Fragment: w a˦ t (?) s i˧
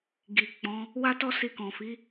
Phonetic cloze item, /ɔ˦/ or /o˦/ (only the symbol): ɔ˦